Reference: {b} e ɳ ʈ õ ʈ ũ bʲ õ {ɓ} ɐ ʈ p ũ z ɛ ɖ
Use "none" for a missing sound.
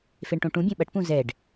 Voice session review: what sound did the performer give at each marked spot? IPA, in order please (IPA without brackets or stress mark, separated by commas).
f, ɓ